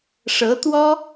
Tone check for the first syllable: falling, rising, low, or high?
rising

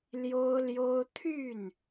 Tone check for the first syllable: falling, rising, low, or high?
high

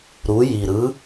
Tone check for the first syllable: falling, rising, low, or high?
rising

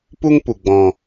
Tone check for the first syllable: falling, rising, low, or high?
high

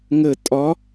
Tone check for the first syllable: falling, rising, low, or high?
falling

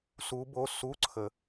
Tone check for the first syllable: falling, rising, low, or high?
rising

